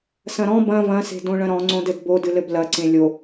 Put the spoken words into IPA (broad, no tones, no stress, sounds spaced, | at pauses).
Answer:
s ɐ̃ ɾ ɔ̃ b ɐ̃ v ɐ̃ s e̤ d õ ɭ ɐ̃ ɾ ɔ̃ ŋ͡ǀ õ d ɘ d b o d ɨ l ɘ b l ɐ ǀ ẽ lʲ o